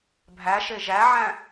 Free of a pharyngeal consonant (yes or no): no